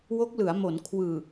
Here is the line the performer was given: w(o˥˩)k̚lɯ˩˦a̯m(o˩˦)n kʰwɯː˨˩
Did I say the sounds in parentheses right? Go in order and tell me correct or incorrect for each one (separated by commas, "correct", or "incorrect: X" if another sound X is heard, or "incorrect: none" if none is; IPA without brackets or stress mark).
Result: incorrect: o˦˥, correct